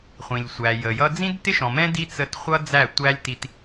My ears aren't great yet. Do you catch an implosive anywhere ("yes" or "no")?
no